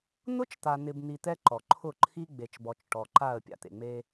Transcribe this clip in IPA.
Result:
n̪ʊ˦t͡ʃt̪a˨n̪ɪ˨bn̪i˨ t̪ɛ˦ǃɔ˨ ǃʰʊ˦˨ǃʰi˦ ɡ͡be˨t͡ʃbɔ˨t͡ʃ ʈɔ˨ǃa˦˨ə̯ pʲa̰˨t̪ḛ˨ŋ͡me˦

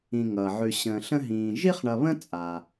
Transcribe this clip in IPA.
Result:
ĩ˨ŋʌː˩ʕʉ˨ ɕə̃ː˨ɬə̃˦ɦĩː˨ ʒi˦χɳʌ˨βə̃˦ t͡sʼa˩

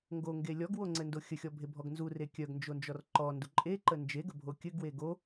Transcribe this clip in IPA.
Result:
ŋɡoŋɡe lʲɔɡwoŋ͡ǀɘndo xʲəxʲɔbʱebʱɔɡ nzure kʲœɡnd͡ʒond͡ʒɔr ǃɔndu ǃʼeǃə nd͡ʒeɡəbʱo kʲɘɡwe ɡo

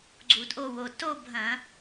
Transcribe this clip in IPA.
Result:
ɡ͡ǀu˧˩˧dʔo˥˧wo˩˧˩ to˥˧bʱɐ̃˧˩˧

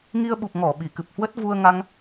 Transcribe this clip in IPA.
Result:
ŋi˧ə̯ɓu˨˩p̚ ŋɔ˧˩ ɓi˧˩kɨ˨˩p̚hwə˦˥t̚ vu˧ə̯ŋa˧ŋ

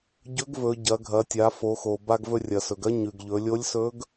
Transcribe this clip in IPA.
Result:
ɟɵ˧˥ɡvɵ˩˧ ɟɐ˩˧ɡʱɐ˩˧tʲa˩˧ fo˩˧xo˩ ba˧ɡvɵ˧rʲɐ˩sɵ˩ɡ ɐ˥ɲʉ˩ɡ ʎɵ˩˧lʲo˧˥lʲsɵ˧˥ɡ

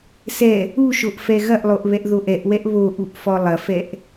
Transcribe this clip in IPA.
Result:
sɛ | uʃoʔ fɛɣɐʔlˠoʔ βɛʔðoʔɛʔwɛʔ βoʔuʔ fɔlˠɐfɛʔ

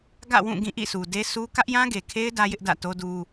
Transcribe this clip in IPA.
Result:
ɡä̰˦˨wũ˦˨ ɡĩ˦˨ʔḭ˦˨su˨de˦ sʰu˦ kä˦ʔjã˦ɡe˨kʰe˦ɪ̯ dä˦jɪ˦ʔdä̰˦˨ to˦du˦

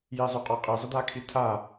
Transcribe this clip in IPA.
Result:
jizˤɵqʼɔ qʼizˤɪdakʰi tʰa

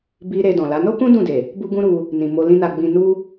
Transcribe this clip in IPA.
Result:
bi˧ ɾe˧dɔ̃˨la˨˦ no˦kũ˦ dũ˦˨de˨ | bu˦ɡũ˦ɾu˧ | nĩ˨mo˧ lĩ˦na˧ ɡ͡bĩ˧nu˦

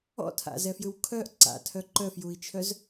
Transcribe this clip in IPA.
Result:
ɔ̰tʰa̰zɛfjɯw kʰœʔ ǀa̰tʰœ ǃœfjui̯t͡ʃʰœz

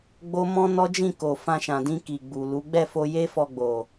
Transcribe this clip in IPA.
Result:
ɡ͡bo˦ mɔ̃˦nɔ˦d͡ʒĩ˦˨ko˨ fã˧ʃã˨dĩ˧ ki˨ɡ͡bu˨ lu˨˦ ɡ͡bɛ˦˨fo˧ je˦fɔ˧ɡ͡bo˨

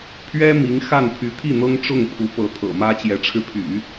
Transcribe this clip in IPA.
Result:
pʰɥɛ˥ mi˧˥ŋ xa˥˩npʰy˧˥ t̪ʰi˥˩n̪ɤ˥ŋ ʈ͡ʂʊ˥˩ŋpʰu˧˥ pɤ˧˥t̪ʰɤ̰˨˩mä˥ t͡ɕjɛ˧˥ʈ͡ʂʰɻ̩˧pʰy̰˨˩˦

